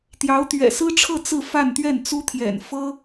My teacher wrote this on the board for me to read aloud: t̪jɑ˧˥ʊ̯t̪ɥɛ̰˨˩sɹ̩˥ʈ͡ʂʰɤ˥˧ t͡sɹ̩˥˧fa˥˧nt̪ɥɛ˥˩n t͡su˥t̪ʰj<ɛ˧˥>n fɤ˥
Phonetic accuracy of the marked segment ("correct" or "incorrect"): incorrect